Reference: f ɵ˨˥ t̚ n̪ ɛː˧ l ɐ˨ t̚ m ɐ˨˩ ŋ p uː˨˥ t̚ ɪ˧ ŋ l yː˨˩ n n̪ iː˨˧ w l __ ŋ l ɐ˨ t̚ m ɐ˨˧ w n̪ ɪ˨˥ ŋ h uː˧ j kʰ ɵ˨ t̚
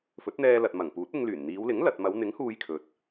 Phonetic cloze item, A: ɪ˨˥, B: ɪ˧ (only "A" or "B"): A